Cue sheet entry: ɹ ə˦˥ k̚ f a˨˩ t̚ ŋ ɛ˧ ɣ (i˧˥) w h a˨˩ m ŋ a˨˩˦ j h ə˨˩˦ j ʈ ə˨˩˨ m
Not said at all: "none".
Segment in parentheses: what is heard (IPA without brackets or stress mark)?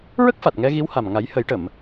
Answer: i˧˥